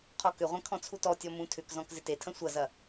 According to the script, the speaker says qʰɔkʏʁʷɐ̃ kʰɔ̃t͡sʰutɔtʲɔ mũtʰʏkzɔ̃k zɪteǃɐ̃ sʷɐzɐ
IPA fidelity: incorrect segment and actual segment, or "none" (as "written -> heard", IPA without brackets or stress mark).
ǃ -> tʰ